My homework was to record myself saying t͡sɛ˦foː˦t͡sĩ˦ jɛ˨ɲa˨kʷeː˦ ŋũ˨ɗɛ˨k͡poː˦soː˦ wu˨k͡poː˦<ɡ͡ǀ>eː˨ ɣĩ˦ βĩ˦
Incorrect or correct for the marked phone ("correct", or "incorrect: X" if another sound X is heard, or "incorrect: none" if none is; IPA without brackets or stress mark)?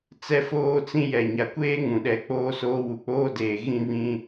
incorrect: d